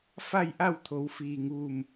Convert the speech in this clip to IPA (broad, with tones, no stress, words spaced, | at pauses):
fa˥˨jʔa˥˨wt̪ʰo˩˧w fiː˩ŋʋu˧˩m